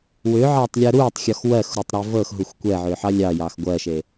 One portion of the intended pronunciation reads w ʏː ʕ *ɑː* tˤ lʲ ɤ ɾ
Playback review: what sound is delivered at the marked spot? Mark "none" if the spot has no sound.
ɑː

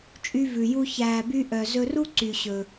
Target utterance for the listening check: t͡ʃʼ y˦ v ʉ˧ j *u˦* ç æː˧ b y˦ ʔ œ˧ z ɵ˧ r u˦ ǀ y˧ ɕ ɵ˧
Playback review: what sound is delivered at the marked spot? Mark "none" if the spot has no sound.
u˦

